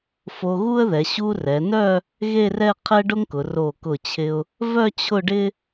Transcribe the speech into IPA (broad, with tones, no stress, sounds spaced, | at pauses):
f o˧ ɣ u˥ ə̯ ð ɛ˩˧ ɕ u˧ r ɛ˩˧ n œ˥˧ | ɣ e˥˧ r ɛ˥˧ qʰ ɛ˥ ɖ ʊ˥ ŋ k ʊ˩˧ r o˧˩ k ʊ˧˩ t͡ɕʰ ɪ˧ ʊ̯ | v œ˥˧ t͡ɕʰ ʊ˥˧ ɖ ɪ˥